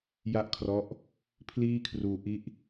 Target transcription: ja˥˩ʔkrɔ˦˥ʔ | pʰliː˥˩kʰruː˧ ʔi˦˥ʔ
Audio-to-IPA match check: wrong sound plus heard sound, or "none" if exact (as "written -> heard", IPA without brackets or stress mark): k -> kʰ